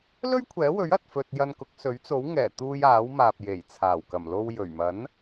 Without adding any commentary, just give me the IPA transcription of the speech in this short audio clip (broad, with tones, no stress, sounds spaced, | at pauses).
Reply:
l ɵ˥ ɥ kʷʰ ɛː˨˥ w ɵ˨˥ ɥ ɐ˨ t̚ f ɵ˧ t̚ j ɐ˧ n k ʊ˨˥ k̚ s ɵ˨˥ ɥ t͡s o˨˥ w ŋ ɛː˨˩ t̪ uː˧ j aː˨˥ w m aː˨ p̚ j e˨˩ j t͡sʰ aː˨˩ w k ɐ˨˩ m l o˧ w j ɵ˨˩ ɥ m ɐ˨˥ n